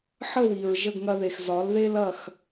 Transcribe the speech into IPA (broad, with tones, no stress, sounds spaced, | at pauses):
ħ ə˥˩ w i˩ ɹ ʒ ə˥˩ ɡ ŋ ɐ˧ ð e˩ x z ɒ˩˥ l ð e˥ l ɐ˥˩ x